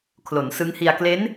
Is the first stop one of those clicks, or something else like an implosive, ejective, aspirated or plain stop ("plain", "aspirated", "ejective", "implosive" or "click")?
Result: aspirated